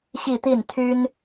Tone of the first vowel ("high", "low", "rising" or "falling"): falling